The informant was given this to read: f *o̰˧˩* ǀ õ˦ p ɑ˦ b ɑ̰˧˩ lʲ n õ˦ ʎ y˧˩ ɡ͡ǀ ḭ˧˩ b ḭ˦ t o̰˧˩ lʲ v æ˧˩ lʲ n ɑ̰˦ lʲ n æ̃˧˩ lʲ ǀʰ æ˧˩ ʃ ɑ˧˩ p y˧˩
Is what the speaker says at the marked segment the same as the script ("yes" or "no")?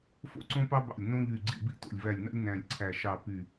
no